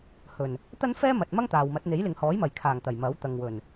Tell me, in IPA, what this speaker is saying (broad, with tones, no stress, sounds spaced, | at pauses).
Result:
h ɵ˨˩ n | t̪ ɐ˥ n f ɛː˥ m ɐ˨ t̚ m ɐ˥ ŋ t̪ aː˨ w m ɐ˨˥ t̚ n̪ e˨˥ j l ɪ˨ ŋ h ɔː˨˥ j m ɐ˨˩ j kʰ aː˨˩ ŋ t̪ ɐ˨˩ j m ɐ˨˥ w t̪ ɐ˨ ŋ w ɵ˨˩ n